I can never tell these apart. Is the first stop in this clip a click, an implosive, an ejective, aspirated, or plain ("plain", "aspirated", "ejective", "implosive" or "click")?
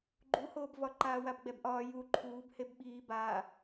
click